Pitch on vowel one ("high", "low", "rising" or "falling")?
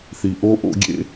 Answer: low